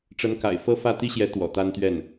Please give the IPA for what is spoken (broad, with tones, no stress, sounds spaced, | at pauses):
ʈ͡ʂ ə˧˥ n k a̰˨˩ ɪ̯ f ɤ˥˧ f ä˥˩ t̪ i˥ ɕ j ɛ˧˥ t̪ w ɔ̰˨˩ t̪ a˥ n t̪ ɥ ɛ˥˩ n